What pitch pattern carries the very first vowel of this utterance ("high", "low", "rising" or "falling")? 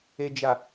low